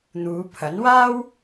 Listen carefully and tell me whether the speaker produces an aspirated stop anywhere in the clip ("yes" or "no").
yes